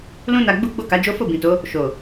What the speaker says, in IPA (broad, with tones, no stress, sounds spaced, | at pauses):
l ũ˦ n a˧ ɡ͡b u˦ ɡ͡b o˦˨ k a˨˦ d͡ʒ o˦ f o˦˨ b ĩ˨ t o˨˦ | ʃ o˨